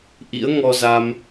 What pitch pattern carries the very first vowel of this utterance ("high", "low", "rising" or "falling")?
rising